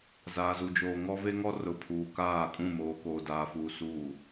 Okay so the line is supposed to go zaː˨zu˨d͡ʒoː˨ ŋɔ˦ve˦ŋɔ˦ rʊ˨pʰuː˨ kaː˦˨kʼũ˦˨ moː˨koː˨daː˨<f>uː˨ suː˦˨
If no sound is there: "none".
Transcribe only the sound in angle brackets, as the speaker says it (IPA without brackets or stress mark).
f